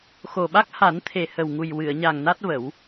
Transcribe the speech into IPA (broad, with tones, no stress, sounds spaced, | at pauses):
x o˨˩ ɓ a˦˥ k̚ h a˨˩˦ n t̪ʰ e˨˩ h ə˨˩ w ŋ u˨˩ j w ɨ˨˩˨ ə̯ ɲ a˨˩ ŋ n a˦˥ t̚ v ə˨˩˦ w